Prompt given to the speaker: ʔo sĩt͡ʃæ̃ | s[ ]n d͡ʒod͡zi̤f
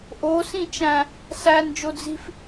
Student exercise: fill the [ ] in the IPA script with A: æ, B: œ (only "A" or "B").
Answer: A